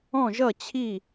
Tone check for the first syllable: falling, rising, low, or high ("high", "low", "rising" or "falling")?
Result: falling